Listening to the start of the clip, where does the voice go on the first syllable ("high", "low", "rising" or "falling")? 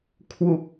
low